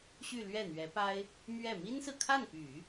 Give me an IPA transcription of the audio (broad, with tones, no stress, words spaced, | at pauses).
ɕy˥˧lɥɛ˥˩n̪ɥɛ˧˥pa˥ɪ̯ | mɥɛ˥˩ mi˥nsɹ̩˨kʰa˥˩npy˨˩˦